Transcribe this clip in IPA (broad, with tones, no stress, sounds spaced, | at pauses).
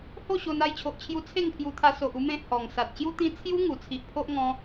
h o˥˧ ɕ o˧ n a˧ j t͡ɕʰ o˨ ʔ t͡ɕʰ j u˧ t͡sʰ e˥˧ ŋ pʰ j u˧ t̪ʰ a˧ s o˨ ʔ u˧ m ẽ˧ h ɔ˨˩ ŋ s a˨ t̚ ɕ j u˧ t̪ ĩ˧ t͡sʰ j u˦ ŋ u˨˩ t͡sʰ i˨ ʔ pʰ o˦ ʔ ŋ ɔ̃˧